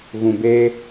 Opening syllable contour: low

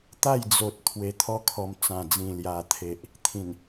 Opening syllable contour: falling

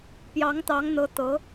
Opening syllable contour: rising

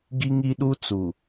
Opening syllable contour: high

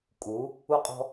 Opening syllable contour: rising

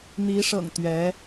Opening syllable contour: rising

